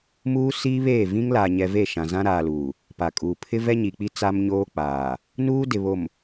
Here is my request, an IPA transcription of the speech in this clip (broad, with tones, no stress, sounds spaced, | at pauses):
m uː˦ s iː˦ β eː˦˨ v ĩ˦ ŋ l aː˨ ɲ ɛ˨ v e˦˨ ʃ ã˨ z ã˦ ɾ aː˨ l uː˨ | p a˨ kʼ uː˨ pʰ ɪ˦ v ɛ˦ ɲ i˨ k͡p i˦ t͡s a˦ m ɲ oː˦ k͡p aː˨ | n uː˦ d ɪ˨ β o˨ m